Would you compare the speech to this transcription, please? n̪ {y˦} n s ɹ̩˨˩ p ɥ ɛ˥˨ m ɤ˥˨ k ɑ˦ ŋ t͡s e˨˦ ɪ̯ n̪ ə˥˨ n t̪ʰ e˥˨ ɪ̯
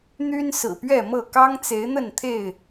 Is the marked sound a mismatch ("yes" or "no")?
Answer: no